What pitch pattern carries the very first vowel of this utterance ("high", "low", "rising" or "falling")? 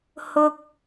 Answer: low